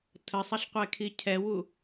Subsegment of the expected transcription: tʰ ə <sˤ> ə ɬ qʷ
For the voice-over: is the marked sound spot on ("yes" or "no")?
yes